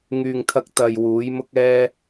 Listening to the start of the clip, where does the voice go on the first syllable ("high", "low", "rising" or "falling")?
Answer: low